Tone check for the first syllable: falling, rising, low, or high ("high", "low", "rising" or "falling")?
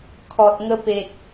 low